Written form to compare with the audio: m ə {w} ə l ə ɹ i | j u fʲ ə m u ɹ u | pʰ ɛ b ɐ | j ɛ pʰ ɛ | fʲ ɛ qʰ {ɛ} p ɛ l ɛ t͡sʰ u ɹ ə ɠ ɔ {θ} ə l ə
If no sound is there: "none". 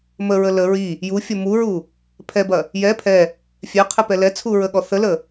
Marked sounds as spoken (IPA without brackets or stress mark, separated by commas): ɹ, ɛ, θ